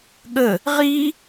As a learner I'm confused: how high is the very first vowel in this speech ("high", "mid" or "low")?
mid